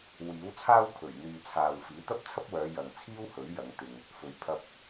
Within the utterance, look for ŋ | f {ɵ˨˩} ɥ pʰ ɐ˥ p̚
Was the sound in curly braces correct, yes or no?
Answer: no